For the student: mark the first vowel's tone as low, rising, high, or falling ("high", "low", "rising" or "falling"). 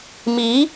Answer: rising